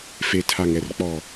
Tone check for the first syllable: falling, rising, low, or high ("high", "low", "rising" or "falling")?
low